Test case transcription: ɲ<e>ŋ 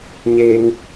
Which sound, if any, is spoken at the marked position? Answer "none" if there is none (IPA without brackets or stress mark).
e